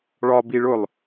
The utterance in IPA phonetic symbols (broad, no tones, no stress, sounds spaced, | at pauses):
ɭ ɒ b i ɭ ʊ lˠ